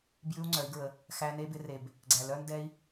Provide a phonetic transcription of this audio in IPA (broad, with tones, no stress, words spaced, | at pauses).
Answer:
bjʉ˦u̯ŋ͡ǀœ˨˦i̯ɡɹə˨˦ | xæ˧ne˦bɪ˧re˨b | ɡ͡ǀæ˨lœ˦ndɛ˦i̯